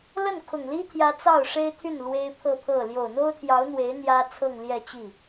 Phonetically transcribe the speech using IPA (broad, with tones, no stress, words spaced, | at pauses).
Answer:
lə˥˩nkʰʊ˨˩ŋli˥t̪ʰjä˧˥ t͡sɑ˥˩ʊ̯ʂe˥ɪ̯t̪ʰy˥˩n lwe˥ɪ̯pʰɤ˥˧pʰɤ˥˩ ljo˨˩ʊ̯n̪o˥ʊ̯t̪ʰjɑ˧˥ʊ̯ n̪we˧˥ɪ̯ n̪jä˥ t͡sʰɤ˥˧ŋljɛ˥˧t͡ɕi˥˩